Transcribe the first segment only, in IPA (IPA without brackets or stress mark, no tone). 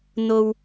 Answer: n̪